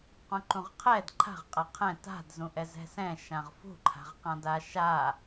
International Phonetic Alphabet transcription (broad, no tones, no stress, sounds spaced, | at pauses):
q ũ ǃ ũ ʁ qʰ ɛ d ǃʰ a̤ ʁ qʼ a qʰ ɛ̃ t a̤ d z ũ ʔ ɛ z ɛ̤ s ɛ̃ ʃ ã ʁ f ṳ ǃʰ a̤ ʁ q ã d a ʃ a